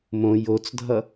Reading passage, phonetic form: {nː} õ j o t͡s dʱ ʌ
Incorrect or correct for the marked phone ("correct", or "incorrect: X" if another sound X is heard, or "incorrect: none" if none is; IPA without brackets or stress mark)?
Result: incorrect: m